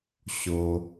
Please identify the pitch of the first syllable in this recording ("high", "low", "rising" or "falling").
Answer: high